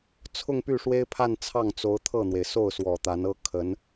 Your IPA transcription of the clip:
t͡sʰ ʊ˥˧ ŋ p y˥˩ ʂ w e˥ ɪ̯ pʰ a˥˧ n t͡sʰ ɑ˥˩ ŋ t͡s o˧˥ ʊ̯ t̪ʰ ɤ˥˩ n̪ w e˩ ɪ̯ s o˥˩ ʊ̯ s w ɔ˨˩ t̪ a˧˥ n ɤ˥ kʰ ə˧˥ n

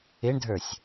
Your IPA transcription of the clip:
ɪ ɳ dʱ ə˞ sʲ

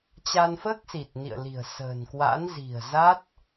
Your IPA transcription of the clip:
t͡ɕ a˧ n f əː˦˥ k̚ s i˨˩ t̚ n ḭ˧˨ ə̯ l i̤˨˩ ə̯ s ə̤ː˨˩ n k w a̰˧˥ n z i̤˨˩ ə̯ z a˦˥ t̚

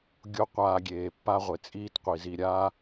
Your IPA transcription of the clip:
ɡʲ o˦ qʷ aː˧ ɡʲ eː˨ pː a˦ ʁʷ e˨ t͡sʼ iː˦ t qʷ i˨ z i˧ ɾʲ a˦

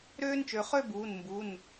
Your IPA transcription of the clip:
ɾ øː˦ n t͡ʃ ø˩˧ χ ø˥˨ b uː˩˧˩ n m b u˩˧˩ n

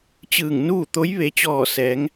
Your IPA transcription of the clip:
t͡ɕ ɯː˧˩ ŋ n uː˥˨ t̪ o˧˥ j ʋ e˩˧ t͡ɕ ɔː˧˩ s ɛː˩˧ ŋ

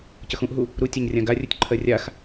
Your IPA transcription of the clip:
c ə x ũ ʔ ɦ u | ɾ u tʲ a ɲ rʲ ã ɡ a rʲ u tʲ ǃʰ ɜ rʲ a x

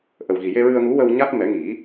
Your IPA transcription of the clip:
ʔ ə˨˩ w ɣ i˨˩ j e˧ ɹ ɨ˧ ə̯ ŋ u˧˥ w ə˧ w ɲ a˦˥ t̚ m ɛ˨˩˦ ŋ i˨˩˦

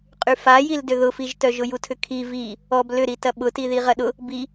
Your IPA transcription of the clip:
qʼ y f a j i l d ʏ ð ʊ f i ʒ t œ ʒ ʊ j u tʰ ʏ kʰ i v i | ɔ b l ʏ ɾ i t ɐ ɓ ʊ t i ð i ʁ ɐ ɗ ʊ | b i

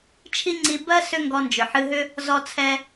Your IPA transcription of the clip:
t͡ʃʰ i˥ ŋ͡ǀ i˧ b ɜ˥ s ʏ˥ ŋ ɡ ɔ˧ n d͡ʒ ʏ˩ ħ ɨ˧ ɦ ʏ˥ | z ɔ˧ t͡sʰ ɛ˧

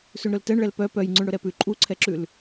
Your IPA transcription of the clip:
s ʉ ɳ ɾ ɵ l t ɛ ɳ ɭ ɛ l p œ p œ j ŋ͡ǀ ʉ ɳ ɽ ɵ ɾ ɛ p ʉ ǃʼ u ǀʰ ɛ ǁ ʉ l

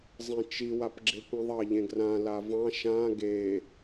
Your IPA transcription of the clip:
zˤ ĩ t͡ʃ i w a p ɡ͡ǁ e kʷ ĩ ðˤ ɑ ʎ ẽ ɡ r ã l a v ɑ̃ ʃ ã ɡ e

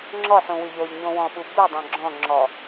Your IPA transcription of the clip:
ŋ͡ǁ ɔ ħ ũ w y ʎ o ʎ ɲ õ w ɔ̃ ɓ u b u dˤ õ ɡ͡ǁ ɔ̃ ŋ͡ǁ ɔ

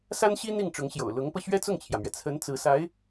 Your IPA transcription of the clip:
s a˥ n ɕ i˥ n̪ i˥˩ ŋ ʈ͡ʂ ʊ˧˥ ŋ ɕ j o̰˨˩ ʊ̯ l ʊ˧˥ ŋ p ɤ˧ ɕ ɥ ɛ˥ t͡s ʊ˥˩ ŋ t͡ɕʰ j ä˩ m ɥ ɛ˩ t͡sʰ ə˧˥ n t͡s ɹ̩˧˥ s a˧˥ ɪ̯

